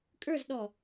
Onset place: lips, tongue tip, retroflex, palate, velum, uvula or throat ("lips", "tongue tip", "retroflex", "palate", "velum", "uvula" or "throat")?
velum